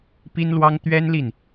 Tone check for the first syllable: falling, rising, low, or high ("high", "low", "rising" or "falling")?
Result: high